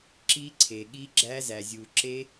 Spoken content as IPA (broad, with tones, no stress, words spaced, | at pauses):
ǁi˦˥ ǀʰe˨ ɠi˦˥ɡ͡ǁæ˦˥zæ˨zʲu˨ ǁe˦˥